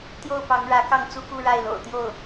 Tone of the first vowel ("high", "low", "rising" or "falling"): falling